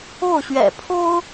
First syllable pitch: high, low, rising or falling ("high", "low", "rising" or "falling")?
falling